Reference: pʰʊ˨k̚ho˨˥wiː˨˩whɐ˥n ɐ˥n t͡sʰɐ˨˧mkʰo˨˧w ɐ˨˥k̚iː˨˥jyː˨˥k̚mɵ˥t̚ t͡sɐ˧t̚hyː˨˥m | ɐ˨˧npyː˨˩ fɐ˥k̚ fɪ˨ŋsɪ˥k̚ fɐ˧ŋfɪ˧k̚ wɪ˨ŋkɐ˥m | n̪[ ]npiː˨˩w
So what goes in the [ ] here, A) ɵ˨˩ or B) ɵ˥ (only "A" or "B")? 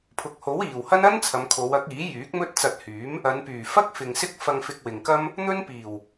B